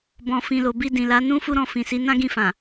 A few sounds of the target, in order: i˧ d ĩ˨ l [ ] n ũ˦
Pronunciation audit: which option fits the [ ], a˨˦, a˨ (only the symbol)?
a˨˦